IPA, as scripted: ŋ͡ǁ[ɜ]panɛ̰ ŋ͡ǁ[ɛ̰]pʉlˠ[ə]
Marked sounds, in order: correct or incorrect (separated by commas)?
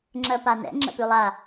correct, incorrect, incorrect